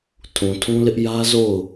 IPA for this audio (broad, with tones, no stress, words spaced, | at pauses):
tʰũ˨tʰũ˦lɪ˦ʔ jä˦zo˦˨ʊ̯